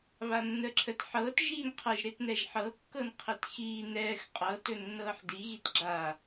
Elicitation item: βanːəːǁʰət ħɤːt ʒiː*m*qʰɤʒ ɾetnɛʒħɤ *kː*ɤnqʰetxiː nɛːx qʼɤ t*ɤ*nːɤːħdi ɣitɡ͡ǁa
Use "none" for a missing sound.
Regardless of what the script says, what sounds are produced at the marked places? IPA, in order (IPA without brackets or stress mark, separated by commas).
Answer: n, kː, ɵ